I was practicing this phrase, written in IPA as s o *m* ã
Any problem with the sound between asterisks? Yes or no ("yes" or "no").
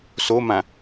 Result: no